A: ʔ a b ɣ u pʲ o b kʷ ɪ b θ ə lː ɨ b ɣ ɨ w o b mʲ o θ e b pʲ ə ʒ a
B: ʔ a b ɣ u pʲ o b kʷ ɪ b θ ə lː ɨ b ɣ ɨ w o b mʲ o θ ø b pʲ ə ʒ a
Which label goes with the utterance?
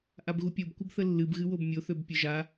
B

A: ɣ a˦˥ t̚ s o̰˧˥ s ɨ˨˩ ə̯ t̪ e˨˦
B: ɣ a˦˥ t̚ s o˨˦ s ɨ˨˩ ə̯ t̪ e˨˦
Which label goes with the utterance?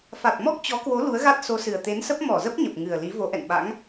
B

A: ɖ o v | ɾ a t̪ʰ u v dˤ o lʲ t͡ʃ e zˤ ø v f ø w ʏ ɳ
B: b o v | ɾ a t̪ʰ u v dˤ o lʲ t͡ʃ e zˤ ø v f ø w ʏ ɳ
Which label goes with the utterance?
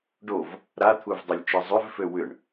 A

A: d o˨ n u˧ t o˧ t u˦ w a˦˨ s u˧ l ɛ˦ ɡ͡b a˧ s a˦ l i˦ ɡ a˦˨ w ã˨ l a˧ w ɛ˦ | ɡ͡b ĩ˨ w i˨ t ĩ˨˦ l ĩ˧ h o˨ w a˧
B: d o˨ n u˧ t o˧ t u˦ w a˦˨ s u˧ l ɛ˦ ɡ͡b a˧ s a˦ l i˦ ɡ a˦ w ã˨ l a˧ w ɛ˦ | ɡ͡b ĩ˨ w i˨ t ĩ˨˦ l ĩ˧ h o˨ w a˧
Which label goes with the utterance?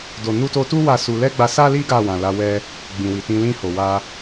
A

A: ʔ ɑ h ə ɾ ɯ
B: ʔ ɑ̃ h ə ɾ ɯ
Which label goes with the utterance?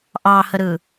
A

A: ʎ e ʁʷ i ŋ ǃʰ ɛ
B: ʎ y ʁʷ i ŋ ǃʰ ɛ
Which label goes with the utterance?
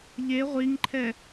A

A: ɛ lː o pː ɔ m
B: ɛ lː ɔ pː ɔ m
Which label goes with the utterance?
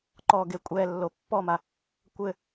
A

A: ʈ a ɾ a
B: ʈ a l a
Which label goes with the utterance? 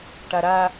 A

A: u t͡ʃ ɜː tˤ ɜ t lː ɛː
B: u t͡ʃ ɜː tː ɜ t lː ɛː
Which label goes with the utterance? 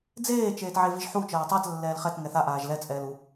A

